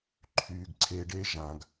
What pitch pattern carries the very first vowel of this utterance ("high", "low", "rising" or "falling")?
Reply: low